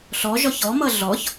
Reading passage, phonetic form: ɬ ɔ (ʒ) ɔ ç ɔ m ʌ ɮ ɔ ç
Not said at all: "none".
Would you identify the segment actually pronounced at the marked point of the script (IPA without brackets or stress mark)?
ʒ